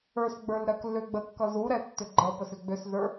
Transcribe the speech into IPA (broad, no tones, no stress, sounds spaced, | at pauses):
ə˞ s ɡ͡b ə˞ l ɾ ɜ k l ʏ ɡ͡b ə kː ʌ z u ɾ ɛ tː ʏ ɡ͡ǃ ʌ p ə s ʏ ɡ͡b ʏ s z ə˞